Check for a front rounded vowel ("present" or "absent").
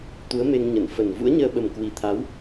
absent